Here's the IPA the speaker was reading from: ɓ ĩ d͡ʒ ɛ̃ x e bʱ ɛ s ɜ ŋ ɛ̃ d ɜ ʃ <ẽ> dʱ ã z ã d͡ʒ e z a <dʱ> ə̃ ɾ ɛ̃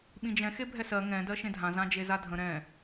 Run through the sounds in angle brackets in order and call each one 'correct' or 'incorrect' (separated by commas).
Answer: correct, correct